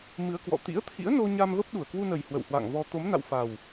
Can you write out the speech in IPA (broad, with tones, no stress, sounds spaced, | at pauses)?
m ɨ˨˦ ə̯ k w ɔ̰˧˨ t̪ ḭ˧˥ ə̯ t̪ʰ ḭ˧˥ ə̯ n o˧ ɲ a˧ m v ə˦˥ p̚ ɗ u˧˩ ə̯ k w u˧ n ə˨˩ j h w ə̰˧˨ w h w a̰ː˧˨ ŋ v ɔ˧ t̪ o˨˦ m n a̰˧˨ w f a˨˩ w